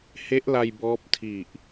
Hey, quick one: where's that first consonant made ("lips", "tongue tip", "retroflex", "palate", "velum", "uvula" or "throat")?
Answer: throat